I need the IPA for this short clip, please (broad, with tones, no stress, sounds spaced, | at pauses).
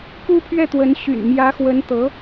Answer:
k u˥ pʰ ɥ ɛ˥˩ t̪ w ə˧˥ n ɕ y̰˨˩ n m j ä˧˥ x w ə˧˥ n t̪ ɤ˧˥